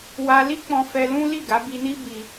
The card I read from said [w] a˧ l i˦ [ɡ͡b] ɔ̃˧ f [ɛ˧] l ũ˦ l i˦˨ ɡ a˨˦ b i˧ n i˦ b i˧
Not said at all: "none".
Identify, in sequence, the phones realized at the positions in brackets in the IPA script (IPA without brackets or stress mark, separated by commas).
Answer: w, k͡p, ɛ˧